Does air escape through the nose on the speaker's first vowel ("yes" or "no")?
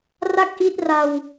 no